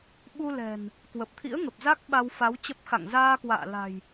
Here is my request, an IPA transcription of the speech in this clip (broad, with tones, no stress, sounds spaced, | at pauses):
ɓ u˧ l ɛ̤˨˩ n | k w ə˨˩ p̚ t̪ʰ ḭ˧˥ ə̯ ŋ ə˨˩ p̚ z a˦˥ k̚ ɓ a˧ w f a˨˦ w t͡ɕ ə˦˥ p̚ x a̰˧˨ ŋ z aː˧ k w a̰ː˧˨ l a̤˨˩ j